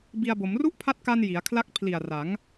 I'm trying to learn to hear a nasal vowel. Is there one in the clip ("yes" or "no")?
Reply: no